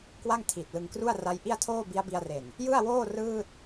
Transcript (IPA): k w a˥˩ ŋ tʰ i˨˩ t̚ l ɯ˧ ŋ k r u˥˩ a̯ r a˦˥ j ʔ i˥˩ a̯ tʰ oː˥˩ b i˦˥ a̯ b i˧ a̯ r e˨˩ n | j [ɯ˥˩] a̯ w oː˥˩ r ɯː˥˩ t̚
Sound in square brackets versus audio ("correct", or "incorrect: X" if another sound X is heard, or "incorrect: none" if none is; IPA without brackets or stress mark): correct